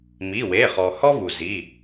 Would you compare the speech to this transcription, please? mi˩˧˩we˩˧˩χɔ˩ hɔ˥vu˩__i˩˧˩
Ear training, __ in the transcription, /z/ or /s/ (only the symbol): z